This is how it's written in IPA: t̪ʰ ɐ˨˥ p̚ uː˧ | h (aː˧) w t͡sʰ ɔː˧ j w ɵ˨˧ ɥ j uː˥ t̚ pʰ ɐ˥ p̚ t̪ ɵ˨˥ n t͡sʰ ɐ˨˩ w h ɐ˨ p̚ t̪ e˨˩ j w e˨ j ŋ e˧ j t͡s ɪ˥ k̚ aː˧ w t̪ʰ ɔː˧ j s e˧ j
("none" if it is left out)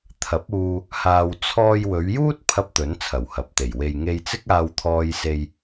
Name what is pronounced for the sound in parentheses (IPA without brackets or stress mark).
aː˧